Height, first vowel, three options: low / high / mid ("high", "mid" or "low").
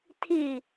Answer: high